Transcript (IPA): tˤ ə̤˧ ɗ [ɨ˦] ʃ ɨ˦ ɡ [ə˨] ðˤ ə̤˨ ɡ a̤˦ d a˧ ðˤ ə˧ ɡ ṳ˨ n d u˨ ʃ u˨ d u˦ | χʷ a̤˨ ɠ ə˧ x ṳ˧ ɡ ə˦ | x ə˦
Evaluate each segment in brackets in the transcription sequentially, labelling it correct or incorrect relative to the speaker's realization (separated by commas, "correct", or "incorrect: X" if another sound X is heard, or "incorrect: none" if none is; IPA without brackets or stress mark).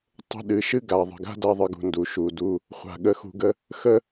incorrect: ɨ˨, incorrect: a˨